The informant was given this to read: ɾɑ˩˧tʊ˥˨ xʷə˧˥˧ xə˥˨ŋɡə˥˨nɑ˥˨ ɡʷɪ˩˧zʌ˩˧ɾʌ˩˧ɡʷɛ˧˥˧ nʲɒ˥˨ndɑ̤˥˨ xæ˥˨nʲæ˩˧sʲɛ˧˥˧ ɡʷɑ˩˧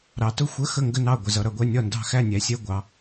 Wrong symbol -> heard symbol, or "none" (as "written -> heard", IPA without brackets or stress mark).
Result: none